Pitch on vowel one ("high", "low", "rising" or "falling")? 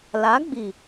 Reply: rising